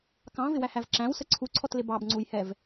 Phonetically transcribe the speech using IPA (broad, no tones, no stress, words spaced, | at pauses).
kɑ̃vɪwæhæv ǁæ̃wsə ǀʰuǀʰɔtlɪ bɑbŋ͡ǀujhɛv